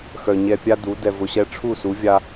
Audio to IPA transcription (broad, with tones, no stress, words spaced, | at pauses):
xœ˨ɲɛ˧ pʲa˦du˨˦ dɛ˧vʊ˧ɕɛ˦ ʈ͡ʂʰu˦˨su˨˦ vʲa˦